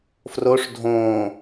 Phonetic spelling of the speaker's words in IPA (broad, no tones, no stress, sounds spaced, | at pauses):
f r o ʂ dʱ õː